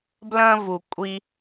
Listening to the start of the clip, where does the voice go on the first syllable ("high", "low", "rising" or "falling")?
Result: high